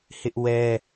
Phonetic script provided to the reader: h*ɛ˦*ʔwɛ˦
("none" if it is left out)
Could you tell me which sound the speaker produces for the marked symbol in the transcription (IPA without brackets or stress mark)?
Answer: ɪ˦